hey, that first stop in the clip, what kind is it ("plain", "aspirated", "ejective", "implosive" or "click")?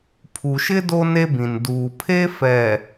aspirated